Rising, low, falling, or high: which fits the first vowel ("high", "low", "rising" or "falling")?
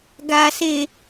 low